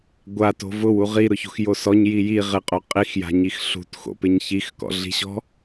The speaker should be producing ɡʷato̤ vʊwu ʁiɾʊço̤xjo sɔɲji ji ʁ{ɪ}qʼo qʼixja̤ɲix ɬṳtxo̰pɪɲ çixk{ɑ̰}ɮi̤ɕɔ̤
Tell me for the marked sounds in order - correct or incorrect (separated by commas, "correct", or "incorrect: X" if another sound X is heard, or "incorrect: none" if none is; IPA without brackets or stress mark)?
correct, incorrect: ɔ̰